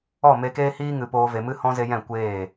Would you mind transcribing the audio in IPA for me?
ɔ˦˨me˧keː˦hiː˦ ŋɨ˨ poː˧ ve˨mɨ˧hɔ̃˧ ze˧jɛ̃˦˨ kʷeː˦˨

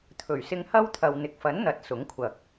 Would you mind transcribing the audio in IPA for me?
t̪ʰɵ˨˩ɥsɪ˧ŋhɐ˥wt̪ʰɐ˨w n̪ɪ˨k̚fɐ˨˥n n̪ɐ˨˥t̚ sʊ˨˥ŋkʷʰɐ˨k̚

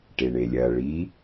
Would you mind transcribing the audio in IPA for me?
ʈeɳelʲɐ ɭi

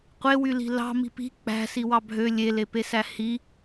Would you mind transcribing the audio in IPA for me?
qʷewyli̤ lɑ̤ mi̤pi̤ k͡pæ̤ siwɑbʱø lʲelepesæ hi

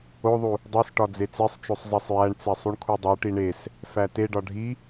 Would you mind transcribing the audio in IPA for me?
oðˤu | dˤesʈɒ d͡zet͡sesˤt͡ʃosˤ zˤesˤjæɳt͡se sˤuɳkʰudˤoʈi ɳes | fæteɖɒ ɖʱi

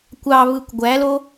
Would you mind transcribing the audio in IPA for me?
kʷɑβɯkʷ ɡʷælo

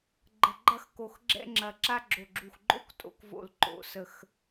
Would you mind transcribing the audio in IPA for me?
ɡ͡ǃə˧˩ɡ͡ǃɐ˥˧xko˧˩x ɡ͡ǁɛ̰˥ŋ͡ǁɐ˧˩ ǁa˥ɡ͡ǁo˧˩ɡ͡ǁu˧˩x ɡ͡ǃo̰˥˧k tʼo̰˥kvo̰˧˩l ǃo̰˩˧sə˧˩x

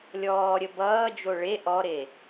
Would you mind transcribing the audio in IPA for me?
lʲɔːɾʲə bʌːd͡ʒo ɭe ʔɔɾe

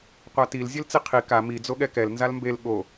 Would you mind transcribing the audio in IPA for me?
qʷatil zʲelt͡siqʰi ka mi d͡zoɠɛkɛl nzalmbel ɠo

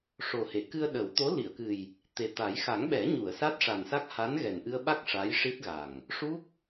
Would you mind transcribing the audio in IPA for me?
ʂo˨˩he˨˩˨ kɨ˧ə̯ɗə˨˩˦wt̪o˧˥ li˨˩˨ə̯kɨ˨˩j | t̪e˨˩t̪a˨˩˦j xa˨˩˦ŋɓɛ˨˩˦ɲu˨˩˨ə̯ sa˦˥t̚ʂa˨˩nsa˦˥k̚ ha˧˥nɣɛ˨˩nʔɨ˧ə̯ɓa˦˥k̚ ʂa˧˥jʂi˦˥t̚ɣa˨˩ŋ | ʂu˦˥k̚

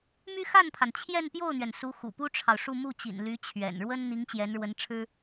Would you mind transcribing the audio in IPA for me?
my˥xa˥˩npʰa˩n t͡ɕʰjɛ˥˧npjo˥˩ʊ̯n̪ɥɛ˩n su˧˥ xṵ˨˩pu˥ʈ͡ʂʰɑ˨ʊ̯ʂu˥˧ mu˥˩t͡ɕḭ˨˩n ly˧˥t͡ɕʰɥɛ̰˨˩nɻwə˥n n̪i˧˥ŋt͡ɕjɛ˧˥nɻwə˧˥nʈ͡ʂʰɻ̩˥

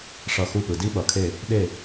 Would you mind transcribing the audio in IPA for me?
ʂʌ˦˨ xu˦˨pɯ˨ di˦˥ɓʌ˨kʰe˦˨ | ɗe˦˨

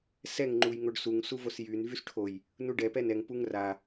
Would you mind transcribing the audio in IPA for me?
sɛŋ ŋ͡ǃujŋoɖsuŋ suvosjyn vysʈʰoj | nuɖɛ pɛnɛŋ puŋra

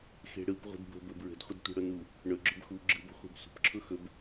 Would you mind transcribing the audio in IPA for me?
xe̤ɽɯp ʁʷi̤dbə̤bɵ bɹə̤dχʷədtʷe̤ ɽʊnu | ɳɵ ɡ͡ǁɵbxu ɡ͡ǁɯbə̤ χʷe̤bsʷə̤p ǁʰʊxɵb

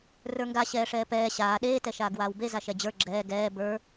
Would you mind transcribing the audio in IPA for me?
rə˞ŋɡa ɕɛːʂɛːpɛː ɕaː ɗeː tɛʃaːɡwaːwbe zaʃɛd͡ʑə˞ ɡ͡ǁɛː ɡɛː bə˞

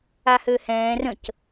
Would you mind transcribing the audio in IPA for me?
ahøhɛ̃ː rə̃c

